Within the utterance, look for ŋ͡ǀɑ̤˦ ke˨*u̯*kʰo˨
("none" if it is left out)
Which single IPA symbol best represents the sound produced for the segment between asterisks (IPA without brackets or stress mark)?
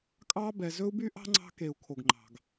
u̯